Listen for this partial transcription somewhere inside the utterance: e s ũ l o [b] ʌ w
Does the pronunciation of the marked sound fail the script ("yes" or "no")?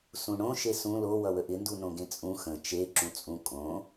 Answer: yes